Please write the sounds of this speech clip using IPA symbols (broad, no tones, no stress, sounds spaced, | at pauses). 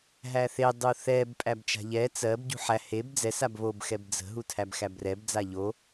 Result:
ɦ æ θ e dˤ u θ ɛ b pʼ æ b t͡ʃ a̤ ʎ ɛ t͡s ɜ b ɟ ṳ ħ æ h e b d͡z ɛ s a b β o b x ɛ b d͡z ə̤ ɦ u tʰ æ b x æ b r ɛ b d͡z a ʎ o